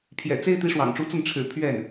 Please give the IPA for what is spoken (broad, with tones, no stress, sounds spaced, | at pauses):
pʰ j ɛ̰˨˩ t͡s e˥ ɪ̯ t̪ i˧˥ ʂ w ɑ̰˨˩ ŋ ʈ͡ʂ u˧˥ t͡s ə˥˩ n ʈ͡ʂʰ ɻ̩˨˩ pʰ ɥ ɛ˥˩ n